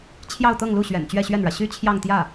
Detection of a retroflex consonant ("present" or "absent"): present